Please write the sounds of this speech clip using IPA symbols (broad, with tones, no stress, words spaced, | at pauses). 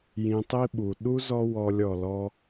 jĩ˧tˤi˦ɓu˨ ɗu˦ zɔ˦wɔ˧lʲɔ˨ lɔ˧